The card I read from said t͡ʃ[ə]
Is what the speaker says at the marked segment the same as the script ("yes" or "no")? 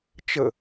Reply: yes